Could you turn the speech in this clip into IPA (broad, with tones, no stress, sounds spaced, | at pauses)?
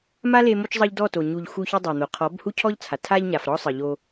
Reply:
m a˦ l e˧ m o˧ t͡ʃ zˤ ɤ˧ ʎ d ɔ˦˨ t o˨ ɲ u˨ ʎ x u˧ ç ɯ˧ dˤ o˨ n̪ o˨ qʰ ɔ˨˦ b h u˦ cʰ ɔ˦ ʎ t͡sʰ a˨ tʰ a˧ ʎ ɲ a˨ f ɾ ɔ˧ sˤ ɯ˨ ʎ o˧